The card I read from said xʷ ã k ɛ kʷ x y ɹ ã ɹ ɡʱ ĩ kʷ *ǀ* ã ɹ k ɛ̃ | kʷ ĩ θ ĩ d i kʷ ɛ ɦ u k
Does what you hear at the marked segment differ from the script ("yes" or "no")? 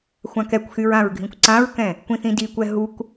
no